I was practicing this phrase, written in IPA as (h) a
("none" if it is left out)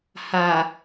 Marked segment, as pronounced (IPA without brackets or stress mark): h